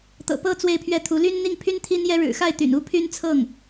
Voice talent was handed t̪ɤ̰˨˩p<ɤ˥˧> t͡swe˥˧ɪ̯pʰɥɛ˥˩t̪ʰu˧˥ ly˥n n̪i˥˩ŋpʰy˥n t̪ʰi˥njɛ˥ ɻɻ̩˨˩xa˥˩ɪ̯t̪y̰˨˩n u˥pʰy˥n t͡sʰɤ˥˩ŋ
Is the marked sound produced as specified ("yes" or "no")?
yes